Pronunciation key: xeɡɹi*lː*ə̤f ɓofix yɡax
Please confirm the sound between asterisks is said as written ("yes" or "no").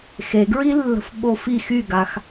yes